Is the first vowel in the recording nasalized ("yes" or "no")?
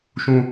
yes